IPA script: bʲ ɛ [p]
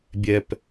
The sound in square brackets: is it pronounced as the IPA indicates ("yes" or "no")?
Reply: yes